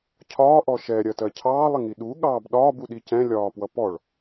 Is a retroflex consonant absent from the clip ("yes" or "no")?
no